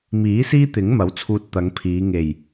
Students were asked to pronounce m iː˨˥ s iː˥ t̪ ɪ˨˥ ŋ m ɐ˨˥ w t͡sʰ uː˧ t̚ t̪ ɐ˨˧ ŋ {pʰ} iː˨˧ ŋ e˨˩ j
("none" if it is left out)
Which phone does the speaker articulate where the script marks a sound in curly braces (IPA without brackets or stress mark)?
pʰ